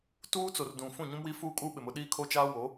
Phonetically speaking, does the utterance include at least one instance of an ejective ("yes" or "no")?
yes